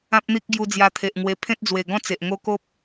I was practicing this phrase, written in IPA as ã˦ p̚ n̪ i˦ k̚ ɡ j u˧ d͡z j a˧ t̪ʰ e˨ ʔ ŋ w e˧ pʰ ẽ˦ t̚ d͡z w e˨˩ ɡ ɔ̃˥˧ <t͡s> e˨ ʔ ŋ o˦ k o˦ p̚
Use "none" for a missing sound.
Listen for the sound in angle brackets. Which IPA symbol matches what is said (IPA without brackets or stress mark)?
t͡s